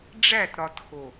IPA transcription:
ɖ͡ʐ æ˦˨ t ɾ ɒ˨ t x o˨

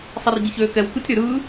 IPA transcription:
sˤ i r ɟ i ç øː k ɛ w k ɯ tʲ ɾ ʏ ɾ ɯː

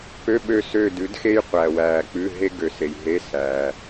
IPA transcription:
p ø˧˥˧ ɓ ø˦˨ s ø˦˨ d ʉ˩˥ d x e˥ j qʷ æ˨ w æː˨ k͡p ʉ˧˥˧ ɦ e˥ ɡ ø˨ s e˨ j ɦ e˧˥˧ s æː˨

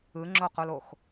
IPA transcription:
ɯ ŋ͡ǁ o q o l o x

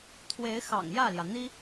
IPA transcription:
t̪ʰ w e˧˥ ɪ̯ x ɑ̰˨˩ ŋ j ä˥˩ l j ä˩ n̪ i˥

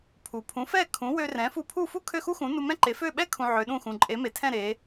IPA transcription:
pʰ u˩ pʰ ũ˩˥ f ɛ˥˩ kʰ ũ˩˥ w ø˧ r ɛ̃˩˥ f u˧ pʰ u˥˩ f u˥ kʰ ø˥˩ x u˥ x ũ˩˥ n u˧ m ɛ̃˥ ǃ e˩˥ f ø˥˩ ɓ ɛ˥ kʰ ũ˧ ʕ ø˩˥ ɗ ũ˥˩ x ũ˩ ǃʼ e˩˥ m e˩ tʰ ɛ̃˥˩ ɾ e˩˥

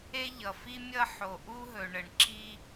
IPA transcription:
e˥ ʎ ʌ˩ f i˥ mʲ ʌ˥ ħ o˩ ʔ u˥ ɦ ɵ˩ ɳ ə˩ ɳ ǁ i˥

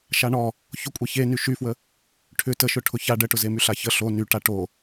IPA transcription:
ʃ a ɳ ɔ | ç ʊ kʷʼ e ç e n y ʃ y f w ə | ʈʰ ʏ t ə ʃ ʊ ʈʰ ʊ ç a ɖ ə ʈ ʊ z e m y ɬ a ç ə ɬ o n y ʈ a ʈ o

